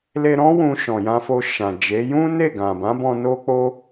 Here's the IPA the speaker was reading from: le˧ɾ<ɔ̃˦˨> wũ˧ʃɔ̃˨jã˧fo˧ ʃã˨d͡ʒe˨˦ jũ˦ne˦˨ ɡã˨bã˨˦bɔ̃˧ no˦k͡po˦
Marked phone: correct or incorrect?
incorrect: ɔ̃˦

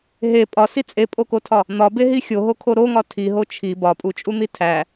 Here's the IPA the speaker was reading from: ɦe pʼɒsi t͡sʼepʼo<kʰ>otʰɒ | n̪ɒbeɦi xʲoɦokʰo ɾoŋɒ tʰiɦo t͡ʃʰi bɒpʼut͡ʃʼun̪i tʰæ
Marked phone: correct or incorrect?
incorrect: k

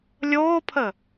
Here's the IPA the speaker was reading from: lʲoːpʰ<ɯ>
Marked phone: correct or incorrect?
incorrect: ə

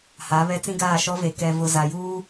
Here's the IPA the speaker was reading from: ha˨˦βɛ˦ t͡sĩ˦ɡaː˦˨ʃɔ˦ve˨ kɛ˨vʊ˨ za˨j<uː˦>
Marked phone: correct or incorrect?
correct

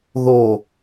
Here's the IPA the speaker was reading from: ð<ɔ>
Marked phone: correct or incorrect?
incorrect: o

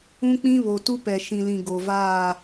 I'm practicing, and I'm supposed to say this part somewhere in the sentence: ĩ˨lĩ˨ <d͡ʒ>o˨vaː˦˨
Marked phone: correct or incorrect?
incorrect: ɡ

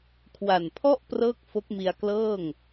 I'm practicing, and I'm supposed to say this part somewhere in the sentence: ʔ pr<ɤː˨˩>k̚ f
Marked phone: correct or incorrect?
incorrect: ɤː˥˩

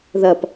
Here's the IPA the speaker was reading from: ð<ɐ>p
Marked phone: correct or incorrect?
correct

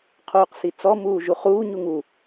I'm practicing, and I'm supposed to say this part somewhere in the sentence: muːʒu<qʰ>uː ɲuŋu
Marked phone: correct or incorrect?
incorrect: χ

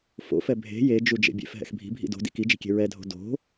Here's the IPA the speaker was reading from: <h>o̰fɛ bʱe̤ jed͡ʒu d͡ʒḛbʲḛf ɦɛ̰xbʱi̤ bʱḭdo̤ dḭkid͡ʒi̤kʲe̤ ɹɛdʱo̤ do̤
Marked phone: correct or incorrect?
incorrect: f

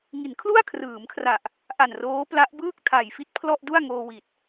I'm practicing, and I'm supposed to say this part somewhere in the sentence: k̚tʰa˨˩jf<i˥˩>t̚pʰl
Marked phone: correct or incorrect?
correct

